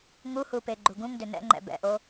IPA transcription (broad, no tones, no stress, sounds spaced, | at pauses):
ŋ u h u p e ɡ͡ǃ u ɡ ũ ŋ d ʏ n ɛ̰ ŋ͡ǃ ɛ̰ b ɛ̰ ʔ o